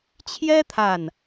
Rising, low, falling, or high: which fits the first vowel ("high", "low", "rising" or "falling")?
high